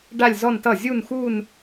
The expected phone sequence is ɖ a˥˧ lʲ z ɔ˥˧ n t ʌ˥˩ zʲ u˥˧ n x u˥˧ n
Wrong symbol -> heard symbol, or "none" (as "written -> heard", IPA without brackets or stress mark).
none